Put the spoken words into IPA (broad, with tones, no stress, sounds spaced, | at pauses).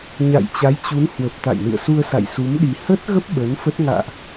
ɲ a̰˧˨ j t͡ɕ a˨˦ j t͡ɕ u˨˦ n h w ə˨˩ p̚ t̪ a̰˧˨ j n ɨ̰˧˨ ə̯ s u˧ ə̯ s a̰˧˨ j s u˨˦ m ɗ i˨˩ h ə˦˥ t̚ ɣ ə˦˥ p̚ ɓ ə˨˦ n f ə˦˥ t̚ ŋ a̰ː˧˨ ʔ